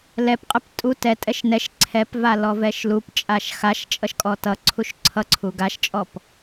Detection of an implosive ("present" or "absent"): absent